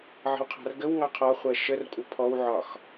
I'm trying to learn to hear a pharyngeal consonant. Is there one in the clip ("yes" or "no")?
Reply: yes